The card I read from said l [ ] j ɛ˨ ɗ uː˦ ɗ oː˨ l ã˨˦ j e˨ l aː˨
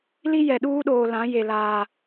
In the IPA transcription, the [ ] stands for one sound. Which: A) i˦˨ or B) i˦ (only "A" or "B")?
B